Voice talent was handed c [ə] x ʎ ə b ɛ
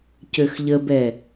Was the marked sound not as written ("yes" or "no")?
yes